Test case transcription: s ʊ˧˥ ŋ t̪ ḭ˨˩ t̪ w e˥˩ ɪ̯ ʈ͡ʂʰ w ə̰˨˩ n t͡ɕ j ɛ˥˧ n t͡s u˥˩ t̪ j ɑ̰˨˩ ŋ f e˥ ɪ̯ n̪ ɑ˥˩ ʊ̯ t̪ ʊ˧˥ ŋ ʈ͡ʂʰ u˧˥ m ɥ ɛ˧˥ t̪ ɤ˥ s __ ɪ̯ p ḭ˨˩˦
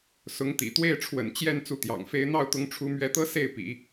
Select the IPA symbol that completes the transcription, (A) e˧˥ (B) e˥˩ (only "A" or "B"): B